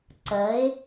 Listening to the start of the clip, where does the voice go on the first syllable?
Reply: rising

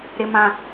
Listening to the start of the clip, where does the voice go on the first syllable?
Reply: low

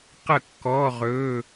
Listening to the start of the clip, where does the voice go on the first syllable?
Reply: falling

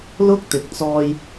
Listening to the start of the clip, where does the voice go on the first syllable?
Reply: high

